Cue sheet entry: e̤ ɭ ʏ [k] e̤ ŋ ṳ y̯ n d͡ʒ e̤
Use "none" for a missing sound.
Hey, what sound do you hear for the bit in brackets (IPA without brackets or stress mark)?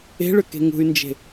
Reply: k